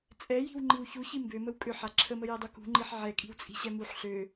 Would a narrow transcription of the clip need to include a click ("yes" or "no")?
yes